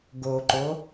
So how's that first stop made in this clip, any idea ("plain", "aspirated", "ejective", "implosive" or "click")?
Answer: plain